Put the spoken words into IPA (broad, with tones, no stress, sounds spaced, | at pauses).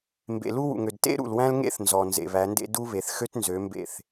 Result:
m b ḛ˨ l u˦ w ṵ˨ ŋ ø˨ d t ḛ˦ ɾ ṵ˨ l w æ̃˦ l ŋ ḛ˦ θ n z ɔ˨ n z ḛ˨ β æ˨˦ n d ḛ˦ d u˦ β e˨ θ x ø˦ t n z ø˨˦ m b ḛ˦˨ θ